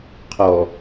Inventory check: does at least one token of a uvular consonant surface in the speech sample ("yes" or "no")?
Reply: yes